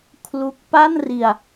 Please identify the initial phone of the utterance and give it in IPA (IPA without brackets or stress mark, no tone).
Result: kʰ